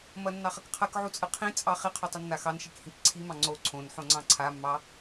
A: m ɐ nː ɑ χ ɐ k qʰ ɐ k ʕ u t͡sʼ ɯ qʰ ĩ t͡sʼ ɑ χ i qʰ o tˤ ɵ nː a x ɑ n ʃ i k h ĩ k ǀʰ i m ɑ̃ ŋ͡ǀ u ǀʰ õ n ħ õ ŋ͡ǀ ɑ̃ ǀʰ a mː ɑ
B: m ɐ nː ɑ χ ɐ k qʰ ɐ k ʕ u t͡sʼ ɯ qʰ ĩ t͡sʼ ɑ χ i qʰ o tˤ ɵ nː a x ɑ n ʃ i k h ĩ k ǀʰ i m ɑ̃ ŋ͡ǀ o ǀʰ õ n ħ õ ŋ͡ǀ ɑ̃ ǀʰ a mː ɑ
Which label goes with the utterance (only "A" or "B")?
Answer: B